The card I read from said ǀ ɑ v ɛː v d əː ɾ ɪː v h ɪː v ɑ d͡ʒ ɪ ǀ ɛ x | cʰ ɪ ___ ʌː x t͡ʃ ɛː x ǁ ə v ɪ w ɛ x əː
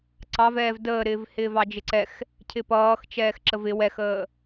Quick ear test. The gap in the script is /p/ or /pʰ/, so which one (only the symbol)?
p